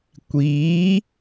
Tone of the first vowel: rising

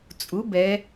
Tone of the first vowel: rising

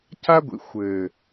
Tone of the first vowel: high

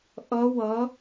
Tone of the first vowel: rising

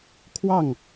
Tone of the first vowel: falling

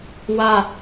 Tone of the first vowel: falling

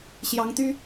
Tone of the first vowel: rising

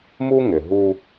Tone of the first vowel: high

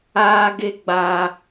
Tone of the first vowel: high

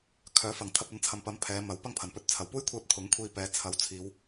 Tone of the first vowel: rising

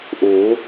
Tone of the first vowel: rising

